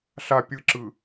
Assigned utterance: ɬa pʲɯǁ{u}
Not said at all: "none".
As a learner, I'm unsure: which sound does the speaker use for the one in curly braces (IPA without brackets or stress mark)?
ɯ